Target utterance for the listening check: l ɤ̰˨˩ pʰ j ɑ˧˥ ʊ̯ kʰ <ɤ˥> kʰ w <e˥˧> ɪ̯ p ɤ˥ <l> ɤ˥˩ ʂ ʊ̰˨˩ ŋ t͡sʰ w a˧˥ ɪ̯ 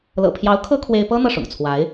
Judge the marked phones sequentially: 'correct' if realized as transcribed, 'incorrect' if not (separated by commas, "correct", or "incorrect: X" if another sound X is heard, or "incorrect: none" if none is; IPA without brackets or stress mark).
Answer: correct, incorrect: e˥, incorrect: n̪